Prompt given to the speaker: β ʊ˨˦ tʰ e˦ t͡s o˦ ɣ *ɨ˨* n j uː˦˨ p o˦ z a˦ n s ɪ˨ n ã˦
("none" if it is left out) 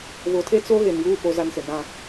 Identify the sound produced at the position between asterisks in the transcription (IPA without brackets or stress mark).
e˨